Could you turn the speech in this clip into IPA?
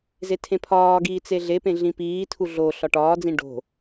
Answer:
zetʰẽpʰɒːɡiː t͡seɮepẽ ɮĩpiːtʰu ɮo ɬɒʈɒːd͡zĩ ɖo̤

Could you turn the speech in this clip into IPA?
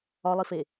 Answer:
ɒlˠife

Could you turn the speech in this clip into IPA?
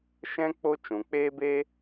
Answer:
ʃɛ̃˦ k͡po˦ t͡ʃũ˨k͡peː˦beː˦

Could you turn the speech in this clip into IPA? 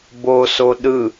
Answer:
boso ɗɯ

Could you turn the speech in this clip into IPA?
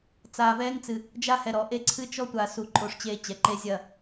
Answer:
t͡saː˨vɛː˦ŋt͡sɨ˨ | d͡ʒa˦hɛ˨ɾɔ˨ ʔe˦ ǀʰɨ˦t͡ʃɔ˦tʷa˨su˨ ǃʼo˦˨ʂt͡ɕeː˦t͡ɕɛ˨˦ ǃe˦zʲɐ˦˨

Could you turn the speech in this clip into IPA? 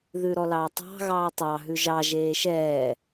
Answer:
ðʉɾɔlɑːtˤɑ̤ ɣɑːtˤɑ ɦʉʒɑ ʒeːʃɛː

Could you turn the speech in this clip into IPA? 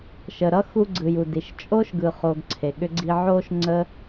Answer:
ʃə˨ɾʌ˥xu˦ ɡ͡ǀɯ˨ju˨di˨ʃ t͡ʃʼo˥ʃɡɯ˨χo˨ɡ ǀʰe˩ɠʏ˨ɡ͡ǀi˨ ʕo˦ʃ ŋ͡ǀə˥

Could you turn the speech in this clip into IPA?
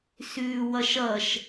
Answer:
sʉːwʌʃʌʃ

